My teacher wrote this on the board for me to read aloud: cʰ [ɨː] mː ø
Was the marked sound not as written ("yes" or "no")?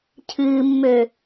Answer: no